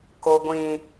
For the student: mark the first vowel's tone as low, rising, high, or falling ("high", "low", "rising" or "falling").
high